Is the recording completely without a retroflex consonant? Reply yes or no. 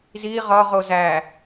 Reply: yes